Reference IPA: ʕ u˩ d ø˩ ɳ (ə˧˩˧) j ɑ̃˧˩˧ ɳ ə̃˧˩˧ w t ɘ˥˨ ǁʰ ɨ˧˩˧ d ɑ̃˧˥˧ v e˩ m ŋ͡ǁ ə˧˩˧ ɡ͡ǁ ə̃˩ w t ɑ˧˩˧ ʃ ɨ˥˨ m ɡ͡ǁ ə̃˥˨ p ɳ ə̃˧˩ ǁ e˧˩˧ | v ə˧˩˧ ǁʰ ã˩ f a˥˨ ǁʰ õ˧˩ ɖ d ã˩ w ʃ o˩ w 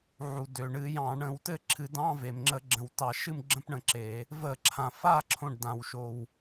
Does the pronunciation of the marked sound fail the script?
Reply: yes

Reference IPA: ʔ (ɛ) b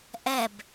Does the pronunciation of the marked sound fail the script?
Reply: no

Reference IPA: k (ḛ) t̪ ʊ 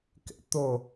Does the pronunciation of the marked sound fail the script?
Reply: no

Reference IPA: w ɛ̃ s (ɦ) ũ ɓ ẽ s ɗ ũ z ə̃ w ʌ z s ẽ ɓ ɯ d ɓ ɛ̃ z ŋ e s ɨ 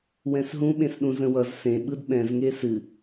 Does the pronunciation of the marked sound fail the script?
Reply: no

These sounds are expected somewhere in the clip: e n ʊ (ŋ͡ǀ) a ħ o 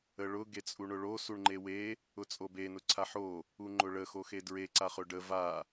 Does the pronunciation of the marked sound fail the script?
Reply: yes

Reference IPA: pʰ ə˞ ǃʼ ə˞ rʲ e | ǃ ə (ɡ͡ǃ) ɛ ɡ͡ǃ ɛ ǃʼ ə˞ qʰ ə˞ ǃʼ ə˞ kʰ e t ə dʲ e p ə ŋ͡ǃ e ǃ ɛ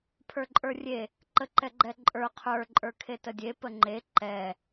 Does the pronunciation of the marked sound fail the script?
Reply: yes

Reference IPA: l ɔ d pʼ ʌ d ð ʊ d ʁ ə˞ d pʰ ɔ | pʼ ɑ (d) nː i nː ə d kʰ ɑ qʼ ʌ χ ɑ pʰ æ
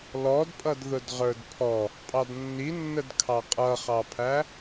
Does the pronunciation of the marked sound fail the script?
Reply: no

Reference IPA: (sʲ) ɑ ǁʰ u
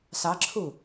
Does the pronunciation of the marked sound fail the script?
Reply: yes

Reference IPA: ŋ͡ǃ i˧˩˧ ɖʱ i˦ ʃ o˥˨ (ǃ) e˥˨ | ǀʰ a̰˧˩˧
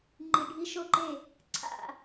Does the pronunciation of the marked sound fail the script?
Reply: no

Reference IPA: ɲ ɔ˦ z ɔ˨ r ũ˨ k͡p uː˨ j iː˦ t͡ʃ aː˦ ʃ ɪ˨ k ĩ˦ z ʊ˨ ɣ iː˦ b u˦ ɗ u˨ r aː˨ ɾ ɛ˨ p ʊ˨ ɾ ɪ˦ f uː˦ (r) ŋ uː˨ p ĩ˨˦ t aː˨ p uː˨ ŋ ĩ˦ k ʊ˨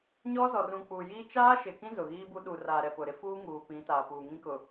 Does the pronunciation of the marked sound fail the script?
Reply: yes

